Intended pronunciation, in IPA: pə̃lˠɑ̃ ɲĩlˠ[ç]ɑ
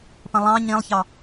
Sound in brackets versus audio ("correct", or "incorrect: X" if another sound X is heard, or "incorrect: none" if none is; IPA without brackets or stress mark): correct